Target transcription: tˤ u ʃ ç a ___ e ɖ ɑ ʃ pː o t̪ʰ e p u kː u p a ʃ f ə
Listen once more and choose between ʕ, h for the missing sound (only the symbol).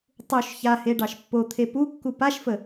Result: h